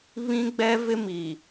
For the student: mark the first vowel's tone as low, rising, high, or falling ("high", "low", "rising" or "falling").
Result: high